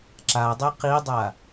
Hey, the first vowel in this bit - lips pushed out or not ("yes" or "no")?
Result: no